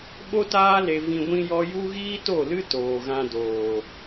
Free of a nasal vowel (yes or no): no